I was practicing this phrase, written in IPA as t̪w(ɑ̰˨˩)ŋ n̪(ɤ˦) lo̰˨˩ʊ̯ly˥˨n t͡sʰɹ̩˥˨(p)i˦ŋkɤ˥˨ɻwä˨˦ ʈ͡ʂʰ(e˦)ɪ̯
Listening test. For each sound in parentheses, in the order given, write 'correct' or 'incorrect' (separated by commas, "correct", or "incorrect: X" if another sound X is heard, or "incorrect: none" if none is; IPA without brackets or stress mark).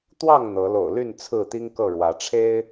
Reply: incorrect: ɑ˥˨, incorrect: ɤ˨˦, incorrect: t̪, correct